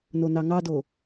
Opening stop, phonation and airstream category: plain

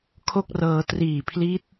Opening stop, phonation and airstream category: aspirated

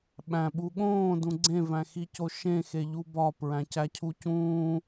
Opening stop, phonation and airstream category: implosive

